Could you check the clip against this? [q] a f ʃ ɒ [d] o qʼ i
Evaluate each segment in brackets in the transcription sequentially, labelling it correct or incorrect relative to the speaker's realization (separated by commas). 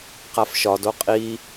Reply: correct, correct